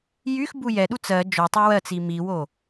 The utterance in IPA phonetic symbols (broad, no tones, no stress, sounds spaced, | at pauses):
j y x b u j ɛ ɗ u t͡s ɜ d͡ʒ o tˤ u w ɜ t͡s i m i w o